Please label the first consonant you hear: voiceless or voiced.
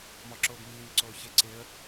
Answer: voiced